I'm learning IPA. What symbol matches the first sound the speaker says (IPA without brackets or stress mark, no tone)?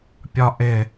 pʲ